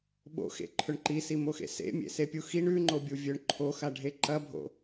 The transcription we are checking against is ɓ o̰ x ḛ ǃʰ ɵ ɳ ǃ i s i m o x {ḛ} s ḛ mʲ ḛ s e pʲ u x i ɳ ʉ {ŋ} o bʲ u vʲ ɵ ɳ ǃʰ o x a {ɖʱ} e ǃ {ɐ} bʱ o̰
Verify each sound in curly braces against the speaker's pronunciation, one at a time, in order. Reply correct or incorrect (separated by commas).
correct, incorrect, correct, correct